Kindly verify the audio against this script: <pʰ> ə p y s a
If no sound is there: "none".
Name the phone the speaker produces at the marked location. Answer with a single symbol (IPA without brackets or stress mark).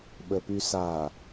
ɓ